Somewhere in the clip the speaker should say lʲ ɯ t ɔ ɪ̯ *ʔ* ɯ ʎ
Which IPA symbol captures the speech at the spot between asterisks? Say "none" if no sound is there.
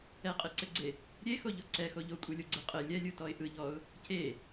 ʔ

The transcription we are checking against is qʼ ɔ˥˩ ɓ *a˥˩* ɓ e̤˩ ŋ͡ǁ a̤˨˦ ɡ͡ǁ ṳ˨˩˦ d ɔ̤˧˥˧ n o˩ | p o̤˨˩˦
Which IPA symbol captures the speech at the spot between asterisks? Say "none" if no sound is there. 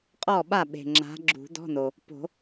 a˥˩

